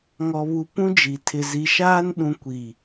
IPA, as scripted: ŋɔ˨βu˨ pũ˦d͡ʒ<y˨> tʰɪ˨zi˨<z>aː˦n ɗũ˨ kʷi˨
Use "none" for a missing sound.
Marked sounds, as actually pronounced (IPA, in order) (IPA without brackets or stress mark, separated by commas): i˨, ʃ